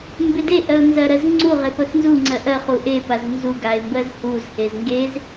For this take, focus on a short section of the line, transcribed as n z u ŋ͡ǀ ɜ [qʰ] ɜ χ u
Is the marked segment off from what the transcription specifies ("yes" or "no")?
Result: yes